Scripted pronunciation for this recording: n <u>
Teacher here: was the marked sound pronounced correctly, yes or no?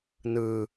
no